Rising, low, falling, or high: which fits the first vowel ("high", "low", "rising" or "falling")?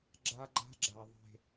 high